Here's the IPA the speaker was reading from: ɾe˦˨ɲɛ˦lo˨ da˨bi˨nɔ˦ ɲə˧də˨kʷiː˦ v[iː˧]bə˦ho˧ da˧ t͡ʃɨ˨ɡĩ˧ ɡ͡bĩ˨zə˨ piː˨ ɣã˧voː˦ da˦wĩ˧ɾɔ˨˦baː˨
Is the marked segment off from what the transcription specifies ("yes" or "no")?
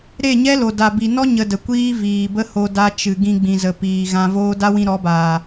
yes